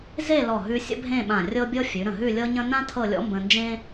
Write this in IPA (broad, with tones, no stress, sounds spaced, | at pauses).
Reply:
z e˥˧ l ɔ˧˩ ɦ ʉ˧ sʲ ə̰˥ bʱ ẽ˥˧ ɓ ã˧˩ rʲ ɤ˥ bʲ ɤ˥ fʲ ʉ˩˧ ɾ ə̃˧˩ ɦ ʉ˥˧ lʲ ɤ˥ ɲ ə̃˥ n ã˥ tʰ ɤ˥˧ lʲ ɔ̰˥ m b ə̃˧ n d͡ʒ ẽ˥